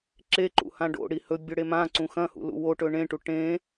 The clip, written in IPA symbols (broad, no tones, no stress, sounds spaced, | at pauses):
ǁ e ǃ ṵ h ã ɖ o̰ ɽ i h ɵ bʲ ɵ ɽ e m ã ǀ ũ x ɐ̃ h ṵ l ṵ w o ʈ ɵ ɳ ẽ ʈ u ʈ ẽ